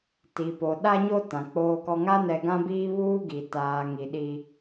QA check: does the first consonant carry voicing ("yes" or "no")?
no